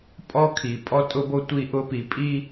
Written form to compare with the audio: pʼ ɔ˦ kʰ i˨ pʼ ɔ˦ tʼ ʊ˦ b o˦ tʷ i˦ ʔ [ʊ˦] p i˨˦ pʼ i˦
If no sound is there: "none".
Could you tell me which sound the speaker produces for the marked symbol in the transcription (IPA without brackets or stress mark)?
ʊ˦